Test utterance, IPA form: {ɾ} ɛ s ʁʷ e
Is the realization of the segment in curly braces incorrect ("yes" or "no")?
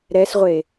no